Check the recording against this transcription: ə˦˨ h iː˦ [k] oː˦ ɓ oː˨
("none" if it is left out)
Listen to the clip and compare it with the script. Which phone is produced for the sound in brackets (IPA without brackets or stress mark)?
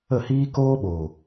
k